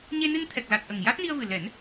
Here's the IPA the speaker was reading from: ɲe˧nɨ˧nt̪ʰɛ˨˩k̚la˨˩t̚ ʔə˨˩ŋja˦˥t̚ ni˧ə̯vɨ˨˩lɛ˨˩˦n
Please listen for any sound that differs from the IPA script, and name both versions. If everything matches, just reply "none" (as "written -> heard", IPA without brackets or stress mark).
none